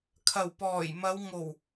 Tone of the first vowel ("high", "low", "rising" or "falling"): low